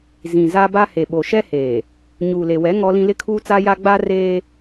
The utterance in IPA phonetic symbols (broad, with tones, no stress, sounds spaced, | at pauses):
z ĩ˨ z a˦ b a˦ h e˨ ɓ o˨ ʃ ɛ˦ h eː˨ | ɲ uː˨ l e˨ w ɛ˨˦ ŋ ɔ˦ l ĩ˦ l ɪ˦ kʰ uː˦ t͡s a˦ j a˦ ɡ͡b a˦ r eː˦